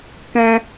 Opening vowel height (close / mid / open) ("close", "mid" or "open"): mid